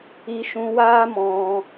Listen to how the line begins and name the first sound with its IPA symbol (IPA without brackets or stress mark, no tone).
i